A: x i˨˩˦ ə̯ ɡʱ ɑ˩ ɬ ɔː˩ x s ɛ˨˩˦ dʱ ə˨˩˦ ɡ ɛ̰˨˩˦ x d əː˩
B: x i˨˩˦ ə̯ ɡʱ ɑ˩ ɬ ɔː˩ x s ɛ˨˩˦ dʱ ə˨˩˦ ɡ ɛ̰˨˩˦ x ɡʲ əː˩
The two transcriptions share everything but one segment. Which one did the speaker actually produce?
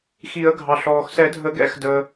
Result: A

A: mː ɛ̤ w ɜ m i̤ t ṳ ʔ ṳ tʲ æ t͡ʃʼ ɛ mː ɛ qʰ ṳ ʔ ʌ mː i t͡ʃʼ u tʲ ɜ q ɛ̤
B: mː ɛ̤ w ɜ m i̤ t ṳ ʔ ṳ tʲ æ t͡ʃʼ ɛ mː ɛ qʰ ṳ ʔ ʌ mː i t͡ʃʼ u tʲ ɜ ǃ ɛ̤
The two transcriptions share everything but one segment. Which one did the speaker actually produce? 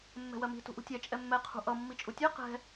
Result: A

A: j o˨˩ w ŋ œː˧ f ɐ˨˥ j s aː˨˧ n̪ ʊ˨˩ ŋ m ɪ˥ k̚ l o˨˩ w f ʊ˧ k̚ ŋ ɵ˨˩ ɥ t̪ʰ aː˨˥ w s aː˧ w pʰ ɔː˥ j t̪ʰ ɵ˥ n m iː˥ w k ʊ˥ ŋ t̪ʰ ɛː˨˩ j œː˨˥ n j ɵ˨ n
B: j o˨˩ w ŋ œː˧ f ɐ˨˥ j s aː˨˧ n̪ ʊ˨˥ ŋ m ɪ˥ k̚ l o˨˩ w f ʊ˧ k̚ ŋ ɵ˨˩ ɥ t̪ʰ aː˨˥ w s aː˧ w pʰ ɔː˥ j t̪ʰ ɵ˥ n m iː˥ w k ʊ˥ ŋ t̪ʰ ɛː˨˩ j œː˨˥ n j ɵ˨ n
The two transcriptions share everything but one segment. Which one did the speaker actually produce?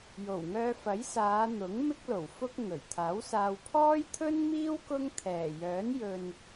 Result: B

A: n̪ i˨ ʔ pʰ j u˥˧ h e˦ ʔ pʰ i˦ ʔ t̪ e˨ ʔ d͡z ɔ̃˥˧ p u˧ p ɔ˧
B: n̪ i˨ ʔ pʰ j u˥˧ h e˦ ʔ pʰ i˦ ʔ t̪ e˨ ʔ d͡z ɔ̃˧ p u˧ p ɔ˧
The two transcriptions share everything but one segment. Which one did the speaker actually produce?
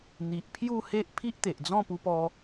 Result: A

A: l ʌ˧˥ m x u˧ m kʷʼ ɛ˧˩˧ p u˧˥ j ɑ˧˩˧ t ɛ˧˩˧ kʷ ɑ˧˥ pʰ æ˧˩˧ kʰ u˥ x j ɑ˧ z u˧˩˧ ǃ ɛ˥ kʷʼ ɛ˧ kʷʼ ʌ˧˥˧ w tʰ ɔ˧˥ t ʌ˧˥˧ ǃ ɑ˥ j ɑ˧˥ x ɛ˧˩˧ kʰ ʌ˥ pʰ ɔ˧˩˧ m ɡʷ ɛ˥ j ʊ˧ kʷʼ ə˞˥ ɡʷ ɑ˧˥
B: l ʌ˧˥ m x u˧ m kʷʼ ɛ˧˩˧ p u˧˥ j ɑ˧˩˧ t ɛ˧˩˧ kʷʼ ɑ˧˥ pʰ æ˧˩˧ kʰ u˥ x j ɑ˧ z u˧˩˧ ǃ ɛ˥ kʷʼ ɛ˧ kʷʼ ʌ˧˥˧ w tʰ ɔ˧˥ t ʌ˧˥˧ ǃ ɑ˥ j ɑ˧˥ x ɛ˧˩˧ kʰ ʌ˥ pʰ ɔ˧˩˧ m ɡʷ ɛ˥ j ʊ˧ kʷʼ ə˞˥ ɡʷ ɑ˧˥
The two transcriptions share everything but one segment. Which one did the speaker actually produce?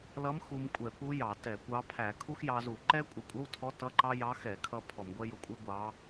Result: A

